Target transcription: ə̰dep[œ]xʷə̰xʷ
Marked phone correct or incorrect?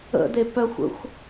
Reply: correct